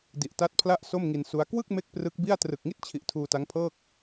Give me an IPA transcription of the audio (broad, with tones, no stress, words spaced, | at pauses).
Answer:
di˨˩ʔta˦˥t̚pʰla˥˩ʔ so˥˩mŋi˧nsu˦˥a̯ kwɯ˥˩k̚ me˥˩k̚prɯ˦˥k̚bi˥˩a̯ trɯ˨˩k̚ŋi˥˩t̚t͡ɕʰi˨˩ʔ tʰuː˧ta˦˥ŋpʰɤː˥˩k̚